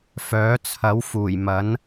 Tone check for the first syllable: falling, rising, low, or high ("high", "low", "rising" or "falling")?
rising